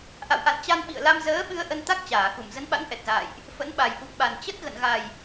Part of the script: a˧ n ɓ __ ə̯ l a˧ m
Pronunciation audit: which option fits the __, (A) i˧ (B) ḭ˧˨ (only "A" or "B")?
B